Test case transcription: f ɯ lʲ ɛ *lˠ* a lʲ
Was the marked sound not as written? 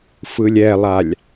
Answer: no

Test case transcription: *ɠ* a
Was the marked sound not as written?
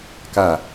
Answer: yes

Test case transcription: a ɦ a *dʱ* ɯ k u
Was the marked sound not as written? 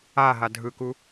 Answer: no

